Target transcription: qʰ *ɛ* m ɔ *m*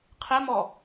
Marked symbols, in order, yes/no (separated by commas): yes, no